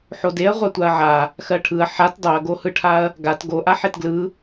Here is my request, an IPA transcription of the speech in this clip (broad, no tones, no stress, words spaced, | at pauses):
ħodeɐ̯ ʁʷatʷaɐ̯ʕa | xɜʈʰɯɐ̯ ħat dˤoɐ̯ɡohɯʈʰaɐ̯ | ɡat ɡoʔa ħetɡlɯ